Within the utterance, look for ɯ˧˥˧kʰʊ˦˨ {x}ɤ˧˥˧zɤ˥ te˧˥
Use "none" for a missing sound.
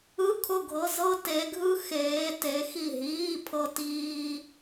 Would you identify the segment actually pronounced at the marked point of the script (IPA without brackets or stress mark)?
ɡʱ